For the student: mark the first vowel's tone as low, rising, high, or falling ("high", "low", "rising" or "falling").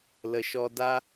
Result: low